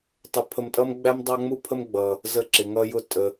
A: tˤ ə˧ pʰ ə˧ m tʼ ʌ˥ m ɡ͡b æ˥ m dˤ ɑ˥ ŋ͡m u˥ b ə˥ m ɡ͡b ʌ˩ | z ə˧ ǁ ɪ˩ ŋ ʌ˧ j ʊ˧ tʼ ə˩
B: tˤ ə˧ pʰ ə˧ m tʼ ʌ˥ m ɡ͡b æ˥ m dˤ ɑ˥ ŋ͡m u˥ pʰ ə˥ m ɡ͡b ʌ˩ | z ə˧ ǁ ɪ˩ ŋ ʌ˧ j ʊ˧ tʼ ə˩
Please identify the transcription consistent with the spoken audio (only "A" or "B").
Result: B